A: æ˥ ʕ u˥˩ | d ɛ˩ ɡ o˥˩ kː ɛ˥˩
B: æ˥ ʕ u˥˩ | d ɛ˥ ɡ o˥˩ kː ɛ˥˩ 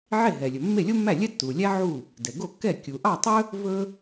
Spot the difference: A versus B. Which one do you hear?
A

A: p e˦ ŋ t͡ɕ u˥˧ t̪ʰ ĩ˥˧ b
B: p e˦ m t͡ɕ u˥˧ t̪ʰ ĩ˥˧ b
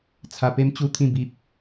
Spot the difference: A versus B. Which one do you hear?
B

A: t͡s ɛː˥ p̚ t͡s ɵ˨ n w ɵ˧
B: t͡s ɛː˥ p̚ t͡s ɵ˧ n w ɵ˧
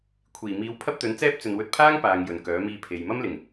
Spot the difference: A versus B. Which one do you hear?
A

